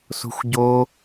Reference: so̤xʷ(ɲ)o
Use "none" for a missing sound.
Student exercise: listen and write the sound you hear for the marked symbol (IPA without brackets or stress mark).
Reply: ɟ